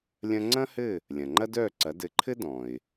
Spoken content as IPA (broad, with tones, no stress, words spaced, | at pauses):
lʲɐ̃˧ŋ͡ǀɐ̃˥hɘ˥˩ | lʲɐ̃˩ŋ͡ǃɐ˥dœː˥˩ǀɐ˩˥ dɘ˩˥ǃʰɘ˥ dɔ̃˩ɪ̯